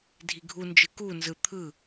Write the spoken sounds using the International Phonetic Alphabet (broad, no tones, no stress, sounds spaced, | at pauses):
dʱ i ɡʱ u n d͡ʒ ɯ k u n z ɯ t̪ʰ ɯ